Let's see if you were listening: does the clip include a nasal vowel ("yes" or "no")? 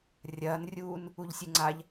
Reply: no